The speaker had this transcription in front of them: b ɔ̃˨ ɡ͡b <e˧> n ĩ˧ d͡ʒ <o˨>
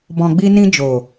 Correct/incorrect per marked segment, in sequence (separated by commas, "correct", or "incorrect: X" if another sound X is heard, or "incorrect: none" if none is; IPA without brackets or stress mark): incorrect: i˧, correct